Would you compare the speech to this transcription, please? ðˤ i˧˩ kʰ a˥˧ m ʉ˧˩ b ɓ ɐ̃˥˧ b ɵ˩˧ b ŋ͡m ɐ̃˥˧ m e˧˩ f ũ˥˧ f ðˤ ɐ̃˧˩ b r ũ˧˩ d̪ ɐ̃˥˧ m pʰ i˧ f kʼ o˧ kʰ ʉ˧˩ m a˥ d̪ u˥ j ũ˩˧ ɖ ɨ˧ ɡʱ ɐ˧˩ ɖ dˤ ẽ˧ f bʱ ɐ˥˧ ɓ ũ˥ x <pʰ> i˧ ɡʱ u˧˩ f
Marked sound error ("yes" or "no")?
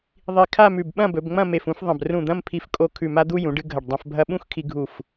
yes